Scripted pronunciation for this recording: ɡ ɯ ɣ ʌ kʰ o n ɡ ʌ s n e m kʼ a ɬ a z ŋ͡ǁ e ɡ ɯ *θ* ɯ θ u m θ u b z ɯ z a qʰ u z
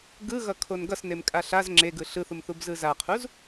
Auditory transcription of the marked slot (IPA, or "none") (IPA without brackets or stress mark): ɬ